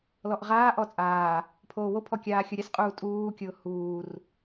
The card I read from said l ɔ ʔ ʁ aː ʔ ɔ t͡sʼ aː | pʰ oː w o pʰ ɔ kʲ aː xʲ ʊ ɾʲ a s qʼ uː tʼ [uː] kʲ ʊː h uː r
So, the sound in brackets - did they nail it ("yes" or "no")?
yes